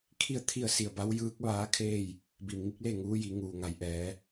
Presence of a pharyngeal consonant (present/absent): absent